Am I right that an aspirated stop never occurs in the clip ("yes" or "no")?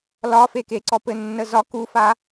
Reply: yes